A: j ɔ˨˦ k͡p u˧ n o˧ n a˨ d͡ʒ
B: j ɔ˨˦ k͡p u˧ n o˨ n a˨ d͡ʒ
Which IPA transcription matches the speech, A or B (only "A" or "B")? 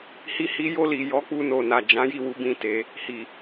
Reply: B